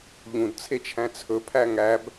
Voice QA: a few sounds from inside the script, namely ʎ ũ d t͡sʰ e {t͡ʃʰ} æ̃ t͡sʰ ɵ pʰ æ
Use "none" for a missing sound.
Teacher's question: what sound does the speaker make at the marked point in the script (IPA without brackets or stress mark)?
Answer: t͡ʃʰ